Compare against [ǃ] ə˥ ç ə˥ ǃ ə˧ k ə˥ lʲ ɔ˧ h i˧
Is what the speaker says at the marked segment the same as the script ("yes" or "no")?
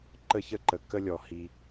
yes